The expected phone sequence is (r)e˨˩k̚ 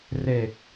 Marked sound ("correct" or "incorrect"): correct